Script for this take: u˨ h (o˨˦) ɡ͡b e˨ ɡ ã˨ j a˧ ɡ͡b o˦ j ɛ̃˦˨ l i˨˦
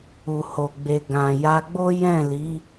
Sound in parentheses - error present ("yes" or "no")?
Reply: yes